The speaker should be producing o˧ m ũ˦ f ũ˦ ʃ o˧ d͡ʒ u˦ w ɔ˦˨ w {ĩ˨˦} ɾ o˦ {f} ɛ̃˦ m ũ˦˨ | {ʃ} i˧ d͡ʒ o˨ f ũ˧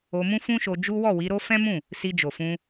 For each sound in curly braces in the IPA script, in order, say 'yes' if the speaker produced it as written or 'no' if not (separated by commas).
no, yes, no